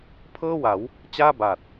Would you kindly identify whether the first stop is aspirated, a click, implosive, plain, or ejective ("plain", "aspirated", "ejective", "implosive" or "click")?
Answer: aspirated